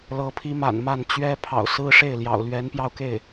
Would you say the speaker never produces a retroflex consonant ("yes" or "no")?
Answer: no